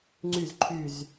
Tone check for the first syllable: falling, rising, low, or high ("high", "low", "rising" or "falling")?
falling